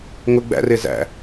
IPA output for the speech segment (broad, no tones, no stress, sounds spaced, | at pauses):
ŋ ʊ ɡ͡b æ̰ r ɪː z æ̰